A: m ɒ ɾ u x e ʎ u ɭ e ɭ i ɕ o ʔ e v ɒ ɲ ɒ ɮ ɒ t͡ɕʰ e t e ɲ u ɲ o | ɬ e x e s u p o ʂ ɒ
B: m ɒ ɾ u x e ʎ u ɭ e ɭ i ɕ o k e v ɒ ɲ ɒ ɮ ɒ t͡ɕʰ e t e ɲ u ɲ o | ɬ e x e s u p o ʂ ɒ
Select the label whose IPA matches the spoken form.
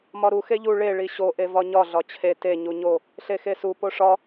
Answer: A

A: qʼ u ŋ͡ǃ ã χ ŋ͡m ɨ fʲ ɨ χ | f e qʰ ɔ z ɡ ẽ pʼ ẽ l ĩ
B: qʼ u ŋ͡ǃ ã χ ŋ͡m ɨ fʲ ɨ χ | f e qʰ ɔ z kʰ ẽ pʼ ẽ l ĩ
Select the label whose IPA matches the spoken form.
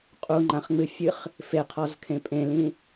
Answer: B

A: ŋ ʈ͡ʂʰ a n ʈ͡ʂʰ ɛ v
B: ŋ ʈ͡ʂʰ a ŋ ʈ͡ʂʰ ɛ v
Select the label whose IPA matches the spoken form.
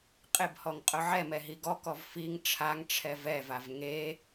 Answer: B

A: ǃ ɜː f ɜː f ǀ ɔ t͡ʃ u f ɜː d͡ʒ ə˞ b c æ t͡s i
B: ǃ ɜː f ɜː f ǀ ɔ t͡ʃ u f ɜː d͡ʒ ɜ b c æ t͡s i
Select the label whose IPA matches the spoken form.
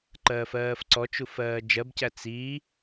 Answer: B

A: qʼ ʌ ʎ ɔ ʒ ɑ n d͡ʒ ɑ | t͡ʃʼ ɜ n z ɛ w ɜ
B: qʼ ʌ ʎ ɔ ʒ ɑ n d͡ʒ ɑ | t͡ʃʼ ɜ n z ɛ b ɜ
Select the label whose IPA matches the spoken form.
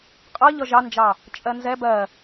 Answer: B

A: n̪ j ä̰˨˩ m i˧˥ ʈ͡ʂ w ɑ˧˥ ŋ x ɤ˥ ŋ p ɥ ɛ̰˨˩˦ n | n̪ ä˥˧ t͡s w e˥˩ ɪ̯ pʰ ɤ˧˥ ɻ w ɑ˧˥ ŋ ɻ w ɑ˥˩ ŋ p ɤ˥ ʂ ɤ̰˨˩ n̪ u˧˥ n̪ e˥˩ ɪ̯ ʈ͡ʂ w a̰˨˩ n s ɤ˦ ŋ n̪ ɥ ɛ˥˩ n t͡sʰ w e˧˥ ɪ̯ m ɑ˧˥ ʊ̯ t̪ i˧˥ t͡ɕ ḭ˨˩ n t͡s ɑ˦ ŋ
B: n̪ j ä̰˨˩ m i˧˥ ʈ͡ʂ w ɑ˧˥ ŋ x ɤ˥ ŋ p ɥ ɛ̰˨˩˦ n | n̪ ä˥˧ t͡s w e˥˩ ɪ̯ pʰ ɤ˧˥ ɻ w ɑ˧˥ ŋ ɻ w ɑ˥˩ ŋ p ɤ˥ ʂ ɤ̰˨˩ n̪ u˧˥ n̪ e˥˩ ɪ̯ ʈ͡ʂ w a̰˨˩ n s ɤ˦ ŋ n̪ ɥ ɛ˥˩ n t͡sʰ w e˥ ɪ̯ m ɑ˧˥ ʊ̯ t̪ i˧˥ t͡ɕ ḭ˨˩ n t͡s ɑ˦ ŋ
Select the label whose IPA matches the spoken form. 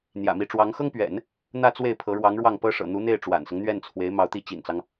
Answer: A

